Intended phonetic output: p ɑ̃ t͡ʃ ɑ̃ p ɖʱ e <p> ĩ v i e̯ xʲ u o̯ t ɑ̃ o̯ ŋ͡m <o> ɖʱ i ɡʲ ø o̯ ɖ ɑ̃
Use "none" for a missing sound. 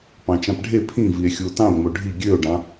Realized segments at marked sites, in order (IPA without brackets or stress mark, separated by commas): pʰ, o